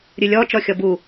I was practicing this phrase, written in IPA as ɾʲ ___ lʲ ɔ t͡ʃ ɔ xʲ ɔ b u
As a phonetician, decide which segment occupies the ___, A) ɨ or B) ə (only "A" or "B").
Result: A